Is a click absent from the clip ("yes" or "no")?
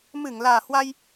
yes